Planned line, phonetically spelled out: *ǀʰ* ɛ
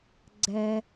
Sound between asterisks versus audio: incorrect: ɡ͡ǀ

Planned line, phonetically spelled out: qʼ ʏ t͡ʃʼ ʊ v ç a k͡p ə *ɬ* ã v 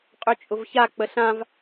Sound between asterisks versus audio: correct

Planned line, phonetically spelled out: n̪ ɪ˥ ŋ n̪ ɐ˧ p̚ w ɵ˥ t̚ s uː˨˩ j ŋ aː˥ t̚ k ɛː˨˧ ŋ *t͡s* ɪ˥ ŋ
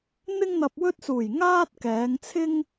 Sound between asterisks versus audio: incorrect: t͡sʰ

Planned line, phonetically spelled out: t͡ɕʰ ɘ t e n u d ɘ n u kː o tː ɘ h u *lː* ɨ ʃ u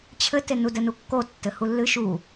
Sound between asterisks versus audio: correct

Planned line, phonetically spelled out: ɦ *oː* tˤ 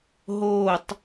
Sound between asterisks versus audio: correct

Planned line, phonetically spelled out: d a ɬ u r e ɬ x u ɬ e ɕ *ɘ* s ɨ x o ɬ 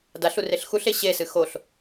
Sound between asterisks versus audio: incorrect: e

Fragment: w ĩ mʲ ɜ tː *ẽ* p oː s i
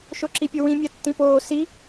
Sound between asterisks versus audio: incorrect: ĩ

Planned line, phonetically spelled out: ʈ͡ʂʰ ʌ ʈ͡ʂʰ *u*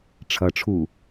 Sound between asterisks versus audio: correct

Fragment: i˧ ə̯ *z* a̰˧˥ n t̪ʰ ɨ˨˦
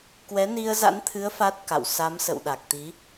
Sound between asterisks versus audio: correct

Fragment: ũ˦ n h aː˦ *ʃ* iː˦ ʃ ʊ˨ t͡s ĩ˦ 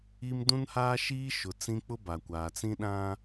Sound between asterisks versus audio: correct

